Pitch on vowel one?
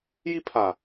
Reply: high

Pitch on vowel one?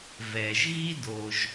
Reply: low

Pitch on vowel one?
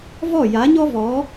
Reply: falling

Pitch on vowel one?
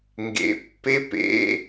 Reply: low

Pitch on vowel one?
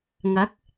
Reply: rising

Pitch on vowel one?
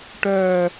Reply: low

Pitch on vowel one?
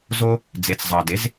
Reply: high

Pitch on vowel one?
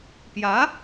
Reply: rising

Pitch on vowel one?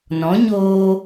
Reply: rising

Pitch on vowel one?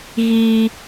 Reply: high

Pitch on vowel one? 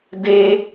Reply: high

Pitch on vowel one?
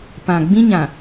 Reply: low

